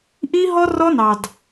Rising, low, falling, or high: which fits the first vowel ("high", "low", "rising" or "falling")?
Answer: high